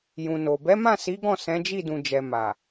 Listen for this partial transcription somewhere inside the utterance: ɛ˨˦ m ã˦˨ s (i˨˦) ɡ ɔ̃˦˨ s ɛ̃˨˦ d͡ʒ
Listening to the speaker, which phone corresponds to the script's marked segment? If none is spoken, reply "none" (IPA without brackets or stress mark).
i˨˦